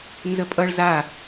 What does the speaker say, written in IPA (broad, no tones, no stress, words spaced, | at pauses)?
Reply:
nzəpʼʌɭ za